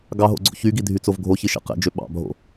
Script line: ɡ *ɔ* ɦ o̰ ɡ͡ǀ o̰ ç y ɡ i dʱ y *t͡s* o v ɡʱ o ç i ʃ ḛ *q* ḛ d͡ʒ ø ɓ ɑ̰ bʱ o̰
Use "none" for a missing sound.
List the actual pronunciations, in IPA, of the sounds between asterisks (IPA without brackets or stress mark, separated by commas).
ɑ, t͡s, q